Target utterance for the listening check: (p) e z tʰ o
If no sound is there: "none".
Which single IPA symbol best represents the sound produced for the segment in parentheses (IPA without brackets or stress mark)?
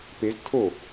p